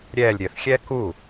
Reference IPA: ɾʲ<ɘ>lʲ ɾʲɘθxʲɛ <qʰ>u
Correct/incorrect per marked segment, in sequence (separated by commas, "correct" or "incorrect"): incorrect, incorrect